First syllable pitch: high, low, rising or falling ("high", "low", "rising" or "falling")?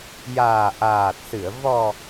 low